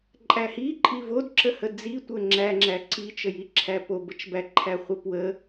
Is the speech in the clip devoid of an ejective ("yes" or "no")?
no